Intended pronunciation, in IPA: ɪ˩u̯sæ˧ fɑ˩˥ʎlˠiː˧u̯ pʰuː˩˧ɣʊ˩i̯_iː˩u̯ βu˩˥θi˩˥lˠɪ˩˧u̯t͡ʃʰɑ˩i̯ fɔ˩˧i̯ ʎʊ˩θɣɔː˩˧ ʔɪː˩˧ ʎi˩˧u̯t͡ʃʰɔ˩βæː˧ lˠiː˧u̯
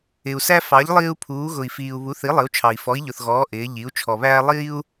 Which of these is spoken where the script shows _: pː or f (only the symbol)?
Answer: f